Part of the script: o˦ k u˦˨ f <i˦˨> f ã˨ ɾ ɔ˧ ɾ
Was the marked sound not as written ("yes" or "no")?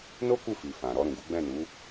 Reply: yes